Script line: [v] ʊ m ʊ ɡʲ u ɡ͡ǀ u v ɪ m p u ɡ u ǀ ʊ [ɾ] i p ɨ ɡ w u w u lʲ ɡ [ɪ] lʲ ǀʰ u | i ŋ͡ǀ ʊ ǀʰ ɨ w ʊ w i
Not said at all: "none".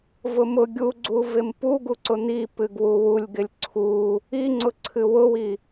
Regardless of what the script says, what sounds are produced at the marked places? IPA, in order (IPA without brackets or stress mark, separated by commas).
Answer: v, n̪, ɪ